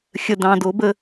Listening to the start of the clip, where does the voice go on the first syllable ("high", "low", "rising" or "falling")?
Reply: low